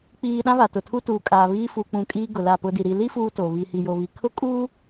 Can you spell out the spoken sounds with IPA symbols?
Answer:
k͡p iː˨ ɗ ã˦ β a˨ t ʊ˨ tʰ u˦ t uː˨ kʼ aː˨ β iː˦ f uː˨ k͡p ũ˨ kʼ iː˦ ɡ ʊ˨ l a˦˨ p ʊ˦ d i˨ ɾ i˨ l i˦ f uː˦ t o˨ β i˨ h i˨ j o˨ β i˨ kʰ ʊ˦ kʼ uː˦

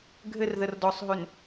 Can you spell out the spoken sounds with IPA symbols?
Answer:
ɡʱ ɘ r ð ə r d ɔ sˤ ɦ ø n

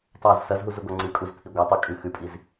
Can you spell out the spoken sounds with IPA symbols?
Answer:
tˤ a z s ɐ z ɦ u z ʉ ɡʷ a ŋ͡ǀ ɨ kʼ u z pʰ i ɡʷ a tˤ ɵ kʼ ʉ x ʉ pʼ i z

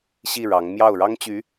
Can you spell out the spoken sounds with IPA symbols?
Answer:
ɕ i˥˩ ɻ ɑ˧˥ ŋ m j ɑ˥˩ ʊ̯ ɻ ɑ˥ ŋ t͡ɕ y˧˥

